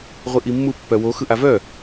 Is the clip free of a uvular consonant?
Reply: no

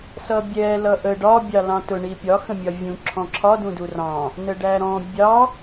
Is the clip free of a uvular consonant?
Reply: yes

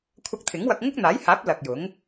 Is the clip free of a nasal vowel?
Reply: yes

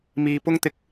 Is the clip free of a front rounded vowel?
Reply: yes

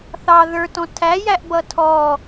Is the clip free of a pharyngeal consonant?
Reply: yes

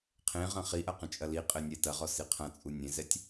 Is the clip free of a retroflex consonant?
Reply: yes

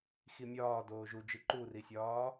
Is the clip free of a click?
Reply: no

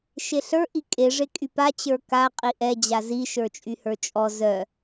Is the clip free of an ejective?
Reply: no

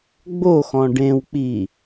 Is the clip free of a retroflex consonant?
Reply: no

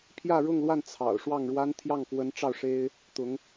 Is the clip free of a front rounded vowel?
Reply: yes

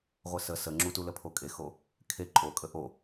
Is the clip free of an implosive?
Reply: yes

